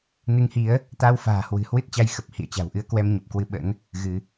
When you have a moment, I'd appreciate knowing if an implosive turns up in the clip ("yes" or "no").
yes